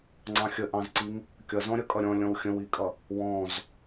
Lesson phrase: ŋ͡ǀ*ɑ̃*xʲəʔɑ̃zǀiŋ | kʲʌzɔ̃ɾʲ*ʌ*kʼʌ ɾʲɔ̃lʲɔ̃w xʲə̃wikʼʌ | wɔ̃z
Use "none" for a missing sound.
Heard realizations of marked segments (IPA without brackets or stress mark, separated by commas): ɑ̃, ʌ